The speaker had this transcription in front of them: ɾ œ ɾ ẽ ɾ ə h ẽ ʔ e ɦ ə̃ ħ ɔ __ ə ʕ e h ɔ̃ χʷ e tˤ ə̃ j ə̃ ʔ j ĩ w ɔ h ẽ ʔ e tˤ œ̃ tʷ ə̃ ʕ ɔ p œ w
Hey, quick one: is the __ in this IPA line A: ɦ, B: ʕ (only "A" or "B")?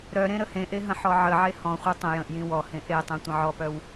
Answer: B